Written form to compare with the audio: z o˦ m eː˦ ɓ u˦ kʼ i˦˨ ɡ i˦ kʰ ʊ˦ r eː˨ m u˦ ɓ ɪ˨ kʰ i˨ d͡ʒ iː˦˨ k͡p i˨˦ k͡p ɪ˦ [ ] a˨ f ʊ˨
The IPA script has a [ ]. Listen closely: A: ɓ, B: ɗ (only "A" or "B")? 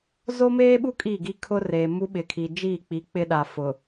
B